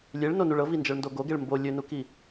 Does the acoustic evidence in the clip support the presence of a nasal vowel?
no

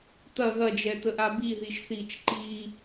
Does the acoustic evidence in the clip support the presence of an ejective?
no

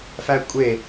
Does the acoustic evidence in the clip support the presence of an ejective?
yes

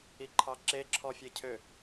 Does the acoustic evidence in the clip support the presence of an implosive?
no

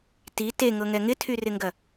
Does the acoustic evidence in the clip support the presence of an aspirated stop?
yes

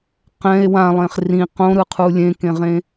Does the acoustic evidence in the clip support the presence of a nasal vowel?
yes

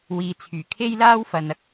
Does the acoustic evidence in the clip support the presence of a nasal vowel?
no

